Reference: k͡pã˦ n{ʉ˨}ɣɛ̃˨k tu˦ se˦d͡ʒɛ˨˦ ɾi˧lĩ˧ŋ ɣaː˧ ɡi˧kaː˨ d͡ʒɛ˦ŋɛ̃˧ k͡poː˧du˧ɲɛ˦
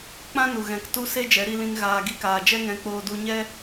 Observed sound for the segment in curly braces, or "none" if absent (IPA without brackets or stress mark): u˨